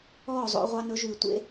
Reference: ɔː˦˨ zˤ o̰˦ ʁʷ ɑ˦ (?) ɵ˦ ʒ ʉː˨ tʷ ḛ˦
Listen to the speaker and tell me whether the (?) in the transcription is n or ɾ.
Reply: n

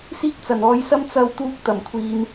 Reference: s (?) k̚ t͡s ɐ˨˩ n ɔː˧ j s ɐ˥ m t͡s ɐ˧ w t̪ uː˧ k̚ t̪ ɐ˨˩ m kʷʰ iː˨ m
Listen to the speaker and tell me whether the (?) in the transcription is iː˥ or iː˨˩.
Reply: iː˥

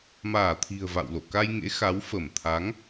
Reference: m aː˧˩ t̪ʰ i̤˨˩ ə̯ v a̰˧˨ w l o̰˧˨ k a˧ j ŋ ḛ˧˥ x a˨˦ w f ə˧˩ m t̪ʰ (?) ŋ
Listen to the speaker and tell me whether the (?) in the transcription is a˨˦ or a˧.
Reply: a˨˦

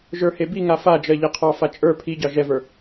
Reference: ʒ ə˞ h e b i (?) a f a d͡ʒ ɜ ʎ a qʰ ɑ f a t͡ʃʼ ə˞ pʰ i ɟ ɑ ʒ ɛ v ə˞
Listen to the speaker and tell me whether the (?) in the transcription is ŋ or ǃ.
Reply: ŋ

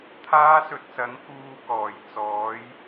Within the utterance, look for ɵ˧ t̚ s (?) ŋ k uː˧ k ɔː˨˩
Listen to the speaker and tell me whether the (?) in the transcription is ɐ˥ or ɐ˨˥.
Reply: ɐ˨˥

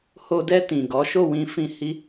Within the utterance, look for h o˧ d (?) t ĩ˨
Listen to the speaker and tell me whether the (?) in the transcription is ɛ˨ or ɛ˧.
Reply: ɛ˧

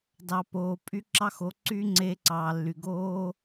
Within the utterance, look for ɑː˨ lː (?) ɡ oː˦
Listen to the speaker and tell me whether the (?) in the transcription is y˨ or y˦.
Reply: y˨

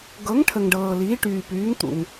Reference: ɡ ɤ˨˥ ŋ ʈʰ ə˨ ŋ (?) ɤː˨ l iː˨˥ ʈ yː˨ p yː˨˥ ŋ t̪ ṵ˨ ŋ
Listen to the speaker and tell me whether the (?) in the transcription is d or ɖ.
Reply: ɖ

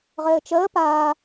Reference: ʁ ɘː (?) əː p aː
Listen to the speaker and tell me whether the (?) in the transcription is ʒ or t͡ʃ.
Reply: t͡ʃ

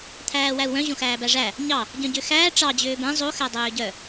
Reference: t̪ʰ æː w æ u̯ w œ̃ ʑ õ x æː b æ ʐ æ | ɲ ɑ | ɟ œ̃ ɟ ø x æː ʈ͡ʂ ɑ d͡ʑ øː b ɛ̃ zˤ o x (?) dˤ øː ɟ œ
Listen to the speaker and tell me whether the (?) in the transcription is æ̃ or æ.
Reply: æ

